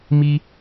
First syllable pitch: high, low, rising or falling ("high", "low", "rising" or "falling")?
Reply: high